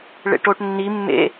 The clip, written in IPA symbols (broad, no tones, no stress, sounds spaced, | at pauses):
ɭ ḛ ʈ o ʈ nː i mː ḛ